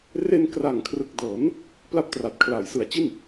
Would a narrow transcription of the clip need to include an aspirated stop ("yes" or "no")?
yes